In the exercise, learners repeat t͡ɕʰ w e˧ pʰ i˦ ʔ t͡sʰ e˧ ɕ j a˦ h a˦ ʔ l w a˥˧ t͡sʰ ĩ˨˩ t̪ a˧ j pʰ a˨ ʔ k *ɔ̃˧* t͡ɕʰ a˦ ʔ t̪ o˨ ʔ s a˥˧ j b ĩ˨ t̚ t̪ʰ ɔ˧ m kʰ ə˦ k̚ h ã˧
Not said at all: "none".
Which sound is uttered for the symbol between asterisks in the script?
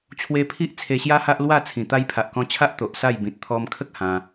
ɔ̃˧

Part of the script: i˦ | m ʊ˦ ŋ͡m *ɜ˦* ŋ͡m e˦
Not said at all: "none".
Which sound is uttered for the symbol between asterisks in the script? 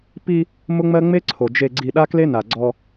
ɜ˦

